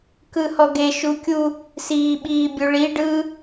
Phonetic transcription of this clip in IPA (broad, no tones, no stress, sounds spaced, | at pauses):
k ɯ h ɔ ɡ e ʃ u kʲ u | s iː ɓ iː bʲ u ɭ i ɖ ɯ